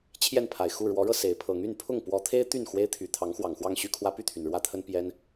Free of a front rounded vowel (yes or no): no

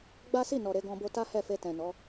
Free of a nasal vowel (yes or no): no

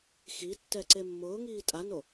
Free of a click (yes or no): no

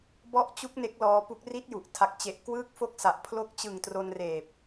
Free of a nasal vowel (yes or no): yes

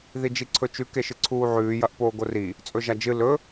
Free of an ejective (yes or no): no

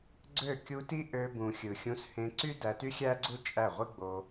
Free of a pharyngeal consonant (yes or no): yes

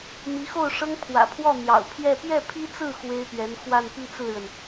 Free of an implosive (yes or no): yes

